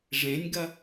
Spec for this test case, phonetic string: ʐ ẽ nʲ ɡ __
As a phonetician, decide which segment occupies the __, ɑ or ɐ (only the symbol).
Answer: ɐ